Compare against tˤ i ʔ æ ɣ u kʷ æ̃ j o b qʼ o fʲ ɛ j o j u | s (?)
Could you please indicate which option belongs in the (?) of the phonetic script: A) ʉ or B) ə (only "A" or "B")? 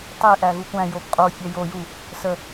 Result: B